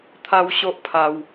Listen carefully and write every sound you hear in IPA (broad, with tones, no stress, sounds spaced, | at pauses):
t̪ʰ a˦ w ɕ o˦ ʔ pʰ a˧ w